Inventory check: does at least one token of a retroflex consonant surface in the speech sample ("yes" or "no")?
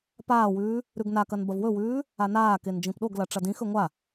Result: yes